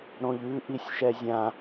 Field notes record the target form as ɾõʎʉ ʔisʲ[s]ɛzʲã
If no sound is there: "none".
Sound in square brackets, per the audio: ʃ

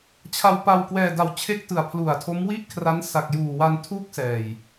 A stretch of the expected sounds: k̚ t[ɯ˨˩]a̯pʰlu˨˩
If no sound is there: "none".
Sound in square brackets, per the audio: ɯ˨˩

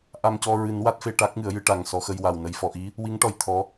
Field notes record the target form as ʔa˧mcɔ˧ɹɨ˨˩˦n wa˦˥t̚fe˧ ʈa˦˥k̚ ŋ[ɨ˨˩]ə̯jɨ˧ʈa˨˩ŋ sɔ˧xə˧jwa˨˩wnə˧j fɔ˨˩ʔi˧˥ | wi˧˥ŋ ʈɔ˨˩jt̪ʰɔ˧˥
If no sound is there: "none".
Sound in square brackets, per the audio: ɨ˨˩˦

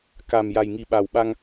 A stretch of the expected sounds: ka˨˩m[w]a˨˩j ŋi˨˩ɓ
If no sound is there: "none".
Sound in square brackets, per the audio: j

